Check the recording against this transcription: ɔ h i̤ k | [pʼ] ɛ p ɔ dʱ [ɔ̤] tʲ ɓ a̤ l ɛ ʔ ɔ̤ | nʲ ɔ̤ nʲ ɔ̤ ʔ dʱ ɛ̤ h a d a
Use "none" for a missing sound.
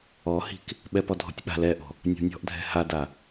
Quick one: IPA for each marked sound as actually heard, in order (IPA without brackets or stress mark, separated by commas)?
ɓ, ɔ̤